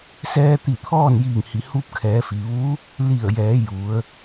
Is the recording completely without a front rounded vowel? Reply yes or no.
yes